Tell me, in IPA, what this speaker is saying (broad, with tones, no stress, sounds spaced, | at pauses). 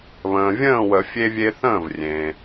β ə̃ː˩ vʲ ə̃ː˥˨ w ə˨˩˦ fʲ e˦ vʲ e˦ θ ə̃ː˥˨ v rʲ ẽ˩